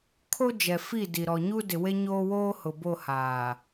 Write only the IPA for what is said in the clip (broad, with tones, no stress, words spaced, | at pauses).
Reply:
kʰo˦d͡ʒɛ˨fi˦˨ di˨ ɾɔ˨ɲu˦ dɪ˨we˦ɲoː˦woː˦ hʊ˨bo˦˨ haː˨